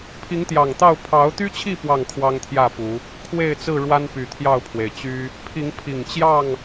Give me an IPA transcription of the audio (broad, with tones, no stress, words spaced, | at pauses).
pʰi˨˦ŋt̪jɑ˨˩ŋt̪ɑ˥˨ʊ̯ pʰɑ˨˦ʊ̯t̪y˦t͡ɕʰi˥˨ pwɑ˥˨ŋkʰwɑ˦ŋt̪ʰjä˥˨ pu˨˦ | kʰwe˥˨ɪ̯t͡sɹ̩˥˨ ɻwa˦npy˨˩t̪ʰjɑ˥˨ʊ̯pʰwe˩ɪ̯ t͡ɕy˦ | pʰi˨˦ŋpʰi˨˩ŋt͡ɕjɑ˥˨ŋ